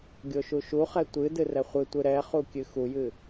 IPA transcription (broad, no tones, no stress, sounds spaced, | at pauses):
ɡʲ o ʃ u ʃ u χ ɛ tʷ ɨ d ɨ r ɛ χʷ ɨ tʷ ɨ ɾ ɛ χ u kʲ ɨ x u j ɨ